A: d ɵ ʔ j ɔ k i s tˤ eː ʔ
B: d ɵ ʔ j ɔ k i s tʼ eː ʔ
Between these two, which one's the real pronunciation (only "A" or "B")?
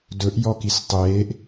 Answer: A